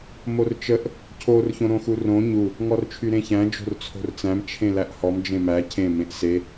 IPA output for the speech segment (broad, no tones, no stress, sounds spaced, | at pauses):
m o r t͡ʃ ə ʔ | cʰ o r ç õ ɾ õ x u r õ ɲ u | ŋ ɔ r t͡ʃʰ y ɾ ẽ ç æ̃ d͡ʒ o̤ r t͡sʰ o̤ r t͡s æ̃ m t͡ʃʰ ẽ l æ ʔ h ɔ m d͡ʒ ẽ m æ cʰ ẽ m ẽ ʔ s e